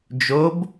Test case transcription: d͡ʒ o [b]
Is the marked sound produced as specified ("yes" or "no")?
yes